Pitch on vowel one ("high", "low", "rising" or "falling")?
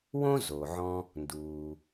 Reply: high